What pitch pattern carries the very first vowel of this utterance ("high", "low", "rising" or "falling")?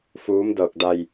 rising